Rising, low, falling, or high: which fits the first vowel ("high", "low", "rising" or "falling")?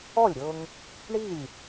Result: falling